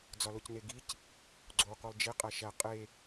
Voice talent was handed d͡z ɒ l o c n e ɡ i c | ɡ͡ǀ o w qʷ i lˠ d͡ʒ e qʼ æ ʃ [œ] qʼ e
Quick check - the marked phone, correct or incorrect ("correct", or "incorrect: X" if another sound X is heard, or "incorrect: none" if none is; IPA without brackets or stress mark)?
incorrect: æ